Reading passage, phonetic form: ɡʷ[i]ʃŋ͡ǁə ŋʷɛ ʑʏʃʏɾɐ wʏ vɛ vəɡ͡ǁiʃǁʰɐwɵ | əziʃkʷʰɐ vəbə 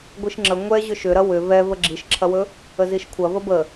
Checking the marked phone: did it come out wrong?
no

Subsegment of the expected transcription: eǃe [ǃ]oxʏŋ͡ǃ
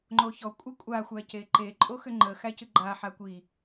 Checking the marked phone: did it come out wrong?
yes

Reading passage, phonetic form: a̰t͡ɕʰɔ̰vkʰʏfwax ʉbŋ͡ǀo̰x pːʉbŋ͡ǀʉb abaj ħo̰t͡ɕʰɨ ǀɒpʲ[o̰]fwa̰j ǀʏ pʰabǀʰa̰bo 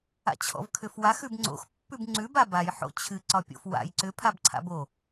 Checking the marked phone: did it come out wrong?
no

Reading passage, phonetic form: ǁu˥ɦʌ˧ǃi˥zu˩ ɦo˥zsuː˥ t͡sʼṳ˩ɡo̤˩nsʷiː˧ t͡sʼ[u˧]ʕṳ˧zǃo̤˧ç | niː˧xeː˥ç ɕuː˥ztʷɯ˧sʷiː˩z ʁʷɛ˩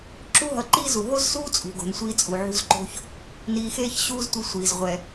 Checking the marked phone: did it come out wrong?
yes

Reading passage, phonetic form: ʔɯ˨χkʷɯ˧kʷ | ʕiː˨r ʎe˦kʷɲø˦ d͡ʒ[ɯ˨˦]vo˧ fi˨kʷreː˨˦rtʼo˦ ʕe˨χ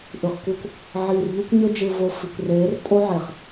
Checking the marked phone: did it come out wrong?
yes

